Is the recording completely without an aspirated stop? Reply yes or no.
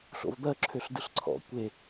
no